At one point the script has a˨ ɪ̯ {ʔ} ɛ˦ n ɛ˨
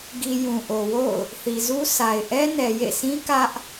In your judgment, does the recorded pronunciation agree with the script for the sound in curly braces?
yes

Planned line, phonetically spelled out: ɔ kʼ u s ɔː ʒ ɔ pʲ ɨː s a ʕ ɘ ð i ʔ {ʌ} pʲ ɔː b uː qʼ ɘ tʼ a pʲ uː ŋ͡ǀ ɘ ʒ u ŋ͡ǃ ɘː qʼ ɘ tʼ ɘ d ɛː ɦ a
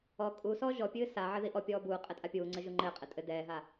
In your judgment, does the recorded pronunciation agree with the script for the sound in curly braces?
no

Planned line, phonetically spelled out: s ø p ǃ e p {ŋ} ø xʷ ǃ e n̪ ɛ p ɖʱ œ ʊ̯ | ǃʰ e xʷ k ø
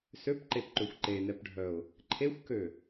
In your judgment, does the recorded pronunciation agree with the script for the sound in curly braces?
no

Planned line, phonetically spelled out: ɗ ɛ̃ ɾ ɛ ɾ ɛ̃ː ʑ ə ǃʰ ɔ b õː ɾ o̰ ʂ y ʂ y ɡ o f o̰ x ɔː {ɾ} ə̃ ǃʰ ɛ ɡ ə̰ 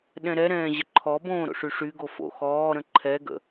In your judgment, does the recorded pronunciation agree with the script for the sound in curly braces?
yes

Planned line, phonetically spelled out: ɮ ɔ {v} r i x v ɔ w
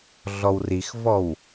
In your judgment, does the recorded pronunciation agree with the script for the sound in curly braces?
no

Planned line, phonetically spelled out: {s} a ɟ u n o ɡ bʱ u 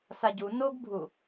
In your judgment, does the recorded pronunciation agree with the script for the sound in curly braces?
yes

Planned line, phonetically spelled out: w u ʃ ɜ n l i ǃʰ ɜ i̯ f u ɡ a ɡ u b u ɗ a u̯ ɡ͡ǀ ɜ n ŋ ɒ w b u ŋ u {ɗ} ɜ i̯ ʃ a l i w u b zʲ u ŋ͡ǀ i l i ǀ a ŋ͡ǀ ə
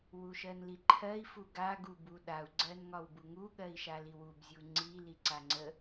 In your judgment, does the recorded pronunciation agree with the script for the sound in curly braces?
no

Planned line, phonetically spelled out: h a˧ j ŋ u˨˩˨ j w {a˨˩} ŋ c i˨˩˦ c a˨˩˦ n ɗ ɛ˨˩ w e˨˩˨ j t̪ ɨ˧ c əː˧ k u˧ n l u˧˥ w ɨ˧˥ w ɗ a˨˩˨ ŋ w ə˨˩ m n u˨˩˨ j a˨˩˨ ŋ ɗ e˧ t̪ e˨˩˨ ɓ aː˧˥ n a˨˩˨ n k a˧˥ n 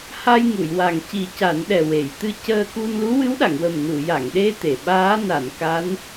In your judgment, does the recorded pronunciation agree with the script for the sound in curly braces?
yes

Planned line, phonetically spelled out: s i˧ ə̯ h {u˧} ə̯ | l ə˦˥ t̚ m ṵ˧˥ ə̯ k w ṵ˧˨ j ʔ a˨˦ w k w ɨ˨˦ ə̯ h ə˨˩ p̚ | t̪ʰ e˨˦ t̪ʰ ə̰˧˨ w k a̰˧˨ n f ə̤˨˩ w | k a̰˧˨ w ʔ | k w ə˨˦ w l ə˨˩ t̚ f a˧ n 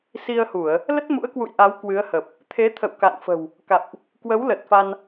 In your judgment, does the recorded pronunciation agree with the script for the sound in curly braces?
no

